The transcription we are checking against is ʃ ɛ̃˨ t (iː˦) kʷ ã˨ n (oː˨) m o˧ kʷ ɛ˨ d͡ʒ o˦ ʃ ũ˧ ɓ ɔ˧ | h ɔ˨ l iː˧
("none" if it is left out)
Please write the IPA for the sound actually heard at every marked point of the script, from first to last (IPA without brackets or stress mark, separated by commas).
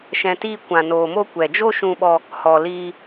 iː˧, oː˨